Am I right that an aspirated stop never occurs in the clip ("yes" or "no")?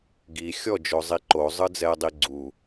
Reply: yes